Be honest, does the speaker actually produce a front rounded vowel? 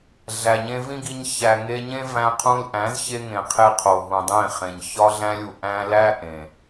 no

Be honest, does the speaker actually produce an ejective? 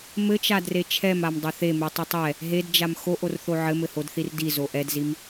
no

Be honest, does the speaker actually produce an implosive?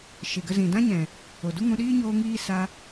yes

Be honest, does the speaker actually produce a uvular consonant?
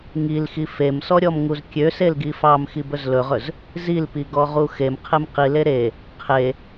yes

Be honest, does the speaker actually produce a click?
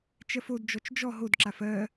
yes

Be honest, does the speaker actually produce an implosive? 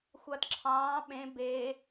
yes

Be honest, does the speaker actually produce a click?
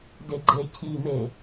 yes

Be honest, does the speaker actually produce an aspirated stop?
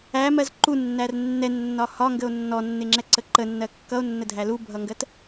no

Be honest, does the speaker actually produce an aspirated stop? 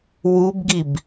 no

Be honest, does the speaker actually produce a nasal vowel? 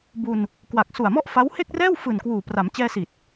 no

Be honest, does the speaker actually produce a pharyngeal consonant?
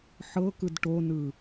yes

